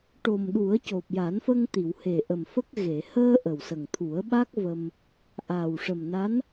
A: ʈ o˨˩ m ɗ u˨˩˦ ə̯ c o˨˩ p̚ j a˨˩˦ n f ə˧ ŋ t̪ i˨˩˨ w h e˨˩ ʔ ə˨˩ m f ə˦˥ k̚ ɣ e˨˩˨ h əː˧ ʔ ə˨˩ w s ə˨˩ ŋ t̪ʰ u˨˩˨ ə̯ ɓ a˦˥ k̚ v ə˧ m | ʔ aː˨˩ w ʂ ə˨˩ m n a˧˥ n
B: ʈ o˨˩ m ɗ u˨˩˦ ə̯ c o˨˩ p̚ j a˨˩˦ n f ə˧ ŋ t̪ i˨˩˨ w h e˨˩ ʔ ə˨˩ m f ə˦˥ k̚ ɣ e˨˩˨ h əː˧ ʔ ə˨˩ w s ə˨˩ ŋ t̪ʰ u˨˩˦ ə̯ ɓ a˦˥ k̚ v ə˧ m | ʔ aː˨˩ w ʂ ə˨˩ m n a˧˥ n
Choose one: B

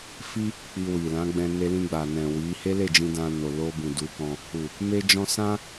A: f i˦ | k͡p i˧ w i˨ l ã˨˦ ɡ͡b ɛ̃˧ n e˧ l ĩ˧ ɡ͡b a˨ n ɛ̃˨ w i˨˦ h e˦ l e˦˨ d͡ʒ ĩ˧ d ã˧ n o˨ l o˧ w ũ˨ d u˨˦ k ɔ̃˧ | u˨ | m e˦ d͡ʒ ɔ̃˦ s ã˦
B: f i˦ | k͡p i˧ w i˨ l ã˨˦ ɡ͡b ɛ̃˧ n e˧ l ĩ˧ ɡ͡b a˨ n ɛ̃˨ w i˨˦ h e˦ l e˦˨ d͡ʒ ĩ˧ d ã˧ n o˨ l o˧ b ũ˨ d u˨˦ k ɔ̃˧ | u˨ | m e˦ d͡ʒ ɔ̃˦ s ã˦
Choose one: B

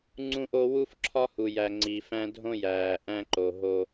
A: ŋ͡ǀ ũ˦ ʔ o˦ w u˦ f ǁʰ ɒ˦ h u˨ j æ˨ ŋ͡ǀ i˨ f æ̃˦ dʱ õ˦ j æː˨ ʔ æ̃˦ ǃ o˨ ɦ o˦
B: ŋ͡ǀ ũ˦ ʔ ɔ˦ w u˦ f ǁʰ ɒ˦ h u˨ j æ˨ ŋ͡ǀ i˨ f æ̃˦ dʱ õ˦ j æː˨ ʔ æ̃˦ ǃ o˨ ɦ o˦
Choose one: A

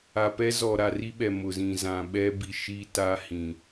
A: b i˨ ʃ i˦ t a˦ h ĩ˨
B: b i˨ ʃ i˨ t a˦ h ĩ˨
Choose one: A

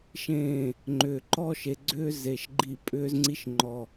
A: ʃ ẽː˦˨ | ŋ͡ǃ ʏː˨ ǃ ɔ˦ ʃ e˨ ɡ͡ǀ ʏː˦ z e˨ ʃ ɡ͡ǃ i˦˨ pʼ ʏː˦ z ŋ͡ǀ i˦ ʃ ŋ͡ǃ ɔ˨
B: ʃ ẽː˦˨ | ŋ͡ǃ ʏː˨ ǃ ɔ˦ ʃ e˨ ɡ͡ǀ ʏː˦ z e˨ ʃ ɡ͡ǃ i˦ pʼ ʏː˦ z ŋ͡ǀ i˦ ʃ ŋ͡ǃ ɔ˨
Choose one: A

